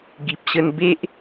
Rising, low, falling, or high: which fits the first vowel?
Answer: low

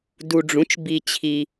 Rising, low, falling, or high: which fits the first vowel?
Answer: low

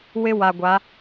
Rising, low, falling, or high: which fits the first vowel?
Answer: high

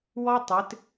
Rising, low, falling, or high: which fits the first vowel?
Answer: high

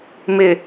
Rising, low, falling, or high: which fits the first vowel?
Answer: low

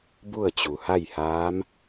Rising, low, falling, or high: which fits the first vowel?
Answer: falling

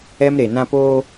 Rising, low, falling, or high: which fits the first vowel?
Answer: high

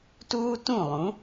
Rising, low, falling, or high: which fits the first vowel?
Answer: high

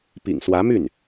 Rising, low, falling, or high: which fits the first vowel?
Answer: low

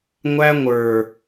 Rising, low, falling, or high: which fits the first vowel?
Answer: high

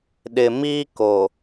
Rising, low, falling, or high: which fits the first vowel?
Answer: low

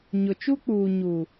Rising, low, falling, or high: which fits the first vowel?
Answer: low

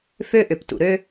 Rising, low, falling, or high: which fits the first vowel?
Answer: high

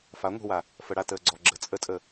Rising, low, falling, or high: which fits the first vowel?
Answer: rising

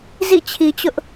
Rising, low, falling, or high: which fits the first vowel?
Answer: falling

